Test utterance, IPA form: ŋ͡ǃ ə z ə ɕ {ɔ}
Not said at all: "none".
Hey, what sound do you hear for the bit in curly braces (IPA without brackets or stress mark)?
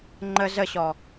ɔ